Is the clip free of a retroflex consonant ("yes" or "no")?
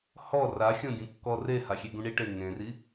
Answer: no